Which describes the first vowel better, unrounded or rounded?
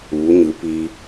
rounded